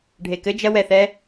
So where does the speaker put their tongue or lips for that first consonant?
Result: retroflex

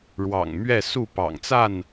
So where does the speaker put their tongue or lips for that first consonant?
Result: retroflex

